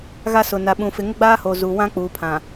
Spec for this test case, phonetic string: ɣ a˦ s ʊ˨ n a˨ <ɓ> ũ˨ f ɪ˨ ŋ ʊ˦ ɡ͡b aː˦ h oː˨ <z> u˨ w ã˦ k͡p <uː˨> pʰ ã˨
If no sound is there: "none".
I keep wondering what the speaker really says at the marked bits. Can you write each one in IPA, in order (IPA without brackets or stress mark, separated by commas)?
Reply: ɓ, z, uː˨